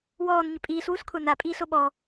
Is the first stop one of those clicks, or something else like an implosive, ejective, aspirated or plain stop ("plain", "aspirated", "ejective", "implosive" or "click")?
ejective